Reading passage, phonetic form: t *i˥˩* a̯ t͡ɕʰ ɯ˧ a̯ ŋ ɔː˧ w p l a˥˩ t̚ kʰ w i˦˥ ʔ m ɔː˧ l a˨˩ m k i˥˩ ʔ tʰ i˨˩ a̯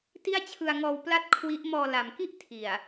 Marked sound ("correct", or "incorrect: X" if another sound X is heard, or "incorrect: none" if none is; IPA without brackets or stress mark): correct